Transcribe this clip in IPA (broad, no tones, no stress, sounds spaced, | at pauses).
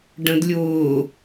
ɖ ə̃ d lʲ ʊː